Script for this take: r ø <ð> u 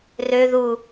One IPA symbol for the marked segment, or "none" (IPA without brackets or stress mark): ð